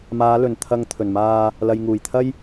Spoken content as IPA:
m aː˨˧ l ɵ˨˩ n t̪ʰ ɐ˧ ŋ t̪ʰ ɵ˨˩ n m aː˧ | l ɐ˨ j ŋ uː˨˩ j t̪ʰ ɐ˥ j

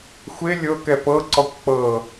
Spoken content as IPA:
xʷ e lʲ ɤ k ɛ p ɤ ǀ ɔ kʷ k͡p ɤ

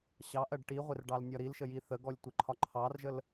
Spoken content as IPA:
ɕ ɑ ʔ ɜ ɖ ʈ i ʁʷ ɪ r ɖ ɑ l nʲ ɒ ɾ i l ʃ ə j i θ ə ɡ ɔ lʲ tʷ ɪ ǃʰ ɒ ǃʰ ɑ r ʒ ə l

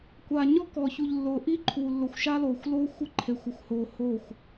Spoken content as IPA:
kʷ a˨ ɲ ɔ˦ k ɔ˨ ç u˨ ʎ lː ʊː˨ ʔ i˦ ǃʰ u˨ lː ʊ˨ xʷ ʃ a˦ l oː˨ xʷ l oː˦ xʷ ɪ˦ ǃʰ e˨ xʷ ɪ˨ xʷ h oː˨ h oː˦˨ xʷ

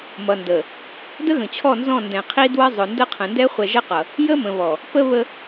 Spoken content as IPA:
m ʌ˨ n d ə˨ | d ə˦ ɣ ə̃˨ t͡ɕʰ ɔ˦˨ n z ɔ̃˦˨ n d ɛ̃˨ qʰ i˦ d w ə˦ zˤ ʊ˨ n d ə˦ qʰ ə̃˨ n d ɛ˦ χʷ ɛ˨ ʒ ə˦ q ʌ˨ | j ə˦ m ə̃˨ β ɔ˨ | p ə˦ β ə˦

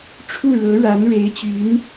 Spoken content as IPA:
ʈ͡ʂʰ u˥˩ ɻ ɤ˧˥ ɻ a˧˥ n ɻ e˧˥ ɪ̯ t͡ɕ y˧˥ n

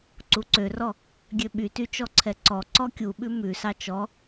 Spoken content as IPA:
ǀ u ǀ ø r ɔ | ɡʲ ø ɓ y t y t͡ʃ ɔ ǀʰ ɛ ǀ ɔ ǀ ɔ kʲ u ɓ ʉ m ʉ s ɑ t͡ʃ ɔ

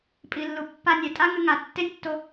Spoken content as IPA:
pʼ i˨ lː u˨ pː a˧ nʲ ɛ˨ tʼ a˦ ŋ ɨ˦ ŋ a˧ tː e˦ nʲ tː o˧

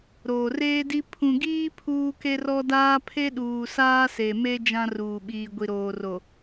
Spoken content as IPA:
ɾ oː˨ r eː˦ d i˦ pʰ ũ˨ ɡ iː˦ pʰ uː˦ k e˦ r ɔ˦ d aː˦ pʰ e˦ ɗ uː˨ s aː˦ s e˨ m e˦ d͡ʒ ã˦ r uː˨ ɓ iː˨ ɡʷ i˨ ɾ oː˨ r o˨

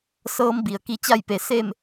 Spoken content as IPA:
s ɤː˧˥ m b i˩ ə̯ k i˧ t͡ɕ a˥˨ j p e˩˧ s e˥˨ m

